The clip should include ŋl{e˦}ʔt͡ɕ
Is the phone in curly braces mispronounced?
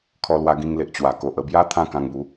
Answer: yes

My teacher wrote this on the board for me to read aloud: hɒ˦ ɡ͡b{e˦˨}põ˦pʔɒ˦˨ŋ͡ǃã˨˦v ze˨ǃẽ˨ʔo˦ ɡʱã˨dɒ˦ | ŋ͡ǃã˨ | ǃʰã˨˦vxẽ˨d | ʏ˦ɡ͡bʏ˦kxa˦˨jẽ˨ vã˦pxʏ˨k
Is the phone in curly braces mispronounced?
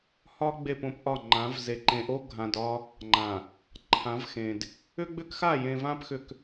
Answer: no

